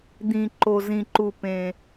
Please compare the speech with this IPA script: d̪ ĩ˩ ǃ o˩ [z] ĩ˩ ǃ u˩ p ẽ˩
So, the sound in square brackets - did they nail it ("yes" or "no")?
yes